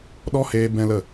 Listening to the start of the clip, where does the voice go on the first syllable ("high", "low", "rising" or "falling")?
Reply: high